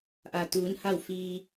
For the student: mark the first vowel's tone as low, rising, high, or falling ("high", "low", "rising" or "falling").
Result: low